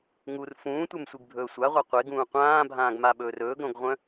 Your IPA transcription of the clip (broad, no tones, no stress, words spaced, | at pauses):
ŋur fũːtʷɛmsʷiɡbʱɵː sʷaʁʷa qʷeɡũː qʷãːbʱãːɡmaɓɵːr ɵːɡɾõɡʁʷœ̃